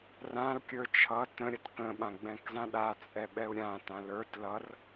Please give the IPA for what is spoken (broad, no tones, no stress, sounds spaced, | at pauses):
r ã l kʲ ə˞ t͡ʃʰ ʌ t ə̃ ɾʲ ʌ t k ə̃ ɓ ã ɡ͡b ɛ̃ k z ã ɗ a t͡sʼ ɛ ɓ ɛ u̯ ɾʲ ã t ã l ə˞ t l ʌ r